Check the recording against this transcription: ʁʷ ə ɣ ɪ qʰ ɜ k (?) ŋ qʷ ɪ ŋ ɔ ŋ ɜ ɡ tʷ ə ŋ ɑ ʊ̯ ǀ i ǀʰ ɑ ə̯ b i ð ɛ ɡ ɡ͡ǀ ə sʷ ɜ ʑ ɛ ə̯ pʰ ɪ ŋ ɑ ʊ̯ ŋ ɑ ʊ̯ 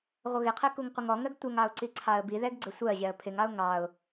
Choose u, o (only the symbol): u